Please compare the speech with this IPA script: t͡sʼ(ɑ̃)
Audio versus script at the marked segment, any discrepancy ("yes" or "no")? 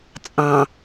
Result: no